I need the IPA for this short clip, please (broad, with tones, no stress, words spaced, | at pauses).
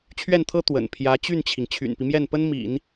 t͡ɕʰɥɛ˥˩nt̪ʰɤ˥ t̪wə̰˨˩n pʰjä˧˥ t͡ɕy˥˩nt͡ɕʰi˩ŋ t͡ɕʰy̰˨˩npi˦mjɛ˥˩npə˥n mḭ˨˩˦n